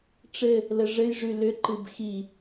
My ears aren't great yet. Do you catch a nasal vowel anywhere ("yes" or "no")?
no